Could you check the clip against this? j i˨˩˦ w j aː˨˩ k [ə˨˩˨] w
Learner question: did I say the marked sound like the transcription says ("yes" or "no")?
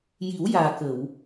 yes